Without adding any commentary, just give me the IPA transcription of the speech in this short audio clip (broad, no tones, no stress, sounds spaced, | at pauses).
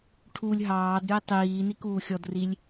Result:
ʈʰ u lʲ ɦ ɑː d ɾʲ o i̯ tˤ iː n i k uː xʲ ɔ d r i lʲ